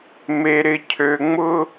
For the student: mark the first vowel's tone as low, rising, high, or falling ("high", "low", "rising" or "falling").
low